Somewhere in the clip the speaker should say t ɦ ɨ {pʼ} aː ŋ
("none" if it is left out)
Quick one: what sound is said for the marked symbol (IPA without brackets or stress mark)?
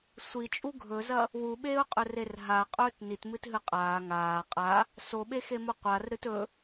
qʼ